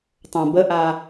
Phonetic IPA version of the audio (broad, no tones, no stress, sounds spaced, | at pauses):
tˤ õ b ə ʔ a